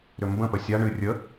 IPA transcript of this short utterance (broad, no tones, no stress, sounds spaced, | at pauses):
ɾ ʏ m b ə̃ p ə sʲ a ɳ ɨ rʲ ə